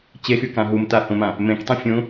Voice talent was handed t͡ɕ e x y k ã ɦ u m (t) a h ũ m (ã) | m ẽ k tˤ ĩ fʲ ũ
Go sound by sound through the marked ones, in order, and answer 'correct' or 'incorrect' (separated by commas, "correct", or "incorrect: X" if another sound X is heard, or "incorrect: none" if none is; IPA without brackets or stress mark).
correct, correct